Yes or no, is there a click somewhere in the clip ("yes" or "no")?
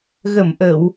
no